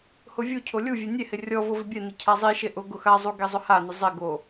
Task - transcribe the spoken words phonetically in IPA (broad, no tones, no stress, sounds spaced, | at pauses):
h ʊ vʲ u cʰ o lʲ u vʲ e nʲ e h ɪ rʲ ɔ v o v ɪ bʲ ɛ n ɪ cʰ a zˤ i ʃ e ʔ ʊ ɡ ʊ x a zˤ u ɡ e zˤ ʊ h a n ɪ zˤ ɪ ɡ o